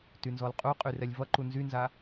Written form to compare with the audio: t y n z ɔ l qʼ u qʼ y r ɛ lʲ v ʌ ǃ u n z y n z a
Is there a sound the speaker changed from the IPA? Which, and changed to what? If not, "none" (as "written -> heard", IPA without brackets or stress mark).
none